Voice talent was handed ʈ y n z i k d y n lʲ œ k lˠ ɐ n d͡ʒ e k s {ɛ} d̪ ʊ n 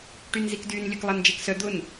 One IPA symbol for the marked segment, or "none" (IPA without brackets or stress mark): œ